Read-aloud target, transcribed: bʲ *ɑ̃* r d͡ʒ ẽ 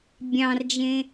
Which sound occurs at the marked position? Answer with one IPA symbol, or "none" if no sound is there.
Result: ɑ̃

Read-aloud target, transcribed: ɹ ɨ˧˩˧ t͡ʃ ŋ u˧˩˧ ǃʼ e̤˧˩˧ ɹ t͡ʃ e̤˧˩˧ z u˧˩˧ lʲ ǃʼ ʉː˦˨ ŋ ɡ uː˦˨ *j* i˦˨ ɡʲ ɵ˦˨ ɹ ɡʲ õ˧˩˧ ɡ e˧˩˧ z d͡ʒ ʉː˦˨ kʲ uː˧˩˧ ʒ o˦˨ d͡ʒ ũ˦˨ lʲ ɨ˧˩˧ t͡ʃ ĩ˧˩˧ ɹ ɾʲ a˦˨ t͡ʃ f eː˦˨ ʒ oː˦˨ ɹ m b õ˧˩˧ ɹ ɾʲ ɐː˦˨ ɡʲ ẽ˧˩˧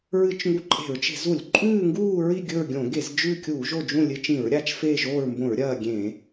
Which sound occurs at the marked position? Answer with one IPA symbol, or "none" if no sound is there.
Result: ɹ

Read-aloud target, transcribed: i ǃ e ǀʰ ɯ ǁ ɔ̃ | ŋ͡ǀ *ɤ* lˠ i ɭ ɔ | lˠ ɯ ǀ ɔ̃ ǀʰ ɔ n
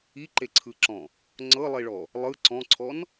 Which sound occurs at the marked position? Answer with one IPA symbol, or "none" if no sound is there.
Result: ɤ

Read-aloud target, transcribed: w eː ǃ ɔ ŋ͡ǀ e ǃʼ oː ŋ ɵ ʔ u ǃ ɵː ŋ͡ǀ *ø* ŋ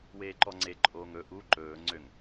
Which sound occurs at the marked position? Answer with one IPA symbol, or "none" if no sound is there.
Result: ø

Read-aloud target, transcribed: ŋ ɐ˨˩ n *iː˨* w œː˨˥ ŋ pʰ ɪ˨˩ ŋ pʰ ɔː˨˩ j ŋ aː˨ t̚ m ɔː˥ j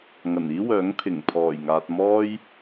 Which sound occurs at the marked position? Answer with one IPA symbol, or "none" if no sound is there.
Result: iː˥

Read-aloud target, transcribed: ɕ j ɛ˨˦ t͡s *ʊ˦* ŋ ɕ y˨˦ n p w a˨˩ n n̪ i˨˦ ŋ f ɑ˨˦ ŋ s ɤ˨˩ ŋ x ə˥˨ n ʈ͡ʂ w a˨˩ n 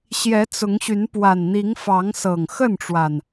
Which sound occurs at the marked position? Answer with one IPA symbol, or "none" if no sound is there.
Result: ʊ˨˦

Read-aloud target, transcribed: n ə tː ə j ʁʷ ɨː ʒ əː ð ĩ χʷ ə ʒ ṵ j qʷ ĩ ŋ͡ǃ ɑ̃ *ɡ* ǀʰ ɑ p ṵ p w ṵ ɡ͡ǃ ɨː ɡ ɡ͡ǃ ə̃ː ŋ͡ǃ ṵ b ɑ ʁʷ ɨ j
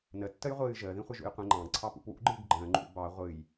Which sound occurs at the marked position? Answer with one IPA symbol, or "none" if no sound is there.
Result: ɡ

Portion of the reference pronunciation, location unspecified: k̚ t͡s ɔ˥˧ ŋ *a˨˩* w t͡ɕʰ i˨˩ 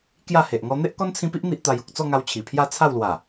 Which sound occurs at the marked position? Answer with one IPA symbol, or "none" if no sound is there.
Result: a˧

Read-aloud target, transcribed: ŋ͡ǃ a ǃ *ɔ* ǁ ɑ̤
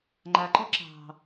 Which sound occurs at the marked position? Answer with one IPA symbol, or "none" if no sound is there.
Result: ɔ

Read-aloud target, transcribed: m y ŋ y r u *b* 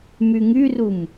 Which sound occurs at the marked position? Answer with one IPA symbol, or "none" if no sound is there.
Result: m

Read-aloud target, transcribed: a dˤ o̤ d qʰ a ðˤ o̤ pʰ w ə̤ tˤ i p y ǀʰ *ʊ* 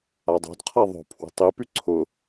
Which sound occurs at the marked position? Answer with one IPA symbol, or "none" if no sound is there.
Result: ʊ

